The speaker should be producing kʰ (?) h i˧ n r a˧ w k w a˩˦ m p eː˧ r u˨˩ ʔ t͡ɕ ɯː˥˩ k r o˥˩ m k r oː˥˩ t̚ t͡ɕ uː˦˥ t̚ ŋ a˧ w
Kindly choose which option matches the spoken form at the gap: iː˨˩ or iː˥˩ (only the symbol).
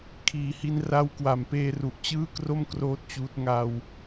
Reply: iː˨˩